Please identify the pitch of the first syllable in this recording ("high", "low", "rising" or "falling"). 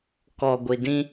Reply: low